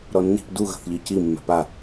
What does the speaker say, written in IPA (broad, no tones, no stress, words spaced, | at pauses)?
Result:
ɾɔnːi̤p duɣə̤θʎi ci mːɛ̤pa